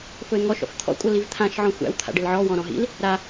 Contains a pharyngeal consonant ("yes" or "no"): yes